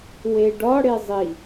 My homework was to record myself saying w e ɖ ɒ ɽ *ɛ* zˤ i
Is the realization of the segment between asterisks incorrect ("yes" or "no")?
yes